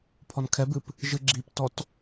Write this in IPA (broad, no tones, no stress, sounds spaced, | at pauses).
pʰ ɔ n kʰ ɛ b ɨ p | ʒ ɨ ɡ͡ǁ i p t ɔ t